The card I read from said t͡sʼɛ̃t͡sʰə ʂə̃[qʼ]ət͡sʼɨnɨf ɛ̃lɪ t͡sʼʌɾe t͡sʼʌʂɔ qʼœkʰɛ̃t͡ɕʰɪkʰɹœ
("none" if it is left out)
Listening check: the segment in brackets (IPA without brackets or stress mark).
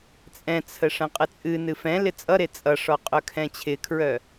qʼ